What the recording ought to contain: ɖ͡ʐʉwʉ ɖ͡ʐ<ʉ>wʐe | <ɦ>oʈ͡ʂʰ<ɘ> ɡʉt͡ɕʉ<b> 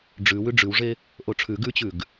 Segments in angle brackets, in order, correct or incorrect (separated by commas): correct, incorrect, incorrect, incorrect